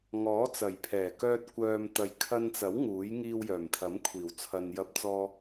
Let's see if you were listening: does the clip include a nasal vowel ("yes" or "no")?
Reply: no